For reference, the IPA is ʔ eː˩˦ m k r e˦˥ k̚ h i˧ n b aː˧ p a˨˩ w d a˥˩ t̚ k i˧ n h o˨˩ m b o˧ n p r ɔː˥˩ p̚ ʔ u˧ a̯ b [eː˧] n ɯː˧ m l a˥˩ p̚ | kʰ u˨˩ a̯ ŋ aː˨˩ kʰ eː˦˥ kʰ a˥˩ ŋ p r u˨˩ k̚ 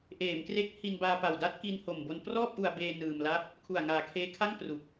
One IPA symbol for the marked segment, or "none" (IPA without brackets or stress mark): eː˧